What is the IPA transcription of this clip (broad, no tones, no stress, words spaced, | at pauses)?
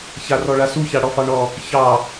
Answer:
çarɔɭasu çaɽɔfɑɳɔ | çɑ